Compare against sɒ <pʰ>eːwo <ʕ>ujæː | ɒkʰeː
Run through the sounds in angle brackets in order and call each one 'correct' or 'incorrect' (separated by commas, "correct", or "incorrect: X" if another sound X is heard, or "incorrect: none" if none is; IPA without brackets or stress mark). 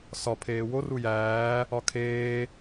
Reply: correct, incorrect: r